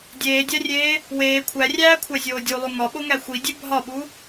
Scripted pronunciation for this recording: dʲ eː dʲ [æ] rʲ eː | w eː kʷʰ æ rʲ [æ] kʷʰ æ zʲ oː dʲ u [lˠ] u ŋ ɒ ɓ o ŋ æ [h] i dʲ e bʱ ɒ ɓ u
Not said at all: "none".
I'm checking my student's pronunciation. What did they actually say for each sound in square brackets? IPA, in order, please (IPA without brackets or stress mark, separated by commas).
æ, æː, lˠ, xʷ